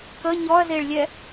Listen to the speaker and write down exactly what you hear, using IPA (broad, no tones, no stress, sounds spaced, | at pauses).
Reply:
k ə ɲ ɔ ɐ̯ z e ɭ lʲ ɛ